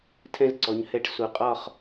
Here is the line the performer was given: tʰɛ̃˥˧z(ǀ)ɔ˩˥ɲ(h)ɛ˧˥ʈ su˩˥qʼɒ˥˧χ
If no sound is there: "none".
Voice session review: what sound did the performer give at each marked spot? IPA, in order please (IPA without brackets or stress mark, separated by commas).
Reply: ǀ, h